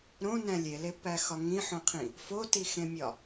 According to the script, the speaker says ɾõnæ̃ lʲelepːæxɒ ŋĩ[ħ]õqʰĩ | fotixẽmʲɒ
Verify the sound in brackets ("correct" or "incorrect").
correct